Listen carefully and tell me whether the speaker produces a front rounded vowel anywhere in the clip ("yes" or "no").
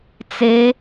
no